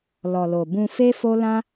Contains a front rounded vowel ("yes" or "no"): no